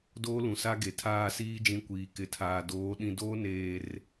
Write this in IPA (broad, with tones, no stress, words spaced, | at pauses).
doː˦lũ˨sa˦ ɡe˨tʰaː˦˨siː˦d͡ʒĩ˨˦ kʷiː˨ kɪ˨tʰaː˨doː˨˦ ɗĩ˨doː˦neː˨r